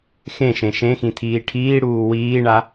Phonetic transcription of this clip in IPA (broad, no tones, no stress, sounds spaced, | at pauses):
x ẽ ʃ ẽ ʃ ẽ x ĩ tʰ iː ʈʰ iː ɽ uː w iː ɳ a